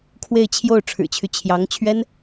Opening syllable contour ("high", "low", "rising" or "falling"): falling